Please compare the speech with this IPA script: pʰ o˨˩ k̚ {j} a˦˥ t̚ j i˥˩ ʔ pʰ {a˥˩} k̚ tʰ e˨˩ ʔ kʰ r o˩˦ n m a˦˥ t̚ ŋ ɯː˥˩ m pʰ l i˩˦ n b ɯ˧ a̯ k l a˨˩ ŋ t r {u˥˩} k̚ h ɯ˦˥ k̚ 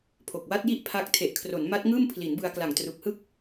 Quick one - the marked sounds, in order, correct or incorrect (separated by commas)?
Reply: incorrect, incorrect, incorrect